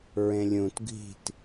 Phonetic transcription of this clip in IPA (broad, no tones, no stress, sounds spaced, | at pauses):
ɹ ẽ lʲ ũ t ɡʱ i̤ t